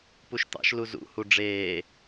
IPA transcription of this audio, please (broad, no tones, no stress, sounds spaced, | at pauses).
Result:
p u ʃ t̪ ɑ̰ ʃ l u z ṵ h u ɖ͡ʐ eː